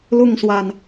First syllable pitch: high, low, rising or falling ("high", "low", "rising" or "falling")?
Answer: falling